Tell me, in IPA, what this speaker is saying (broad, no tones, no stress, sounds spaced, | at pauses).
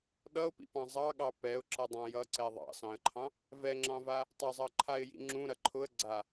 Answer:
ɗ ʌ ʊ̯ p ḭ p ɑ̃ zˤ ɑ ɠ ɑ p ɛ ʊ̯ ǁ ʌ dˤ ɑ̃ j ʌ ǀ ɛ ðˤ ɑ̰ s ɑ̃ ə̯ ǃʰ ɑ̃ | v ɛ ŋ͡ǁ ɑ̃ v a | tˤ ɐ zˤ ʌ ǃʰ a ɪ̯ j ḭ ŋ͡ǁ ũ ɾ ɐ ǃʰ ʊ ə̯ ɡ͡ǀ a